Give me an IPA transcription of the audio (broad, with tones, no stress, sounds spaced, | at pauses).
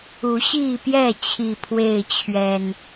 u˨˦ ɕ i˥˨ p j ɛ˥˨ t͡ɕʰ i˨˩ pʰ w e˥˨ ɪ̯ t͡ɕʰ ɥ ɛ˨˩ n